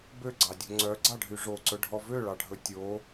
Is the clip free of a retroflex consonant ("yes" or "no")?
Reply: no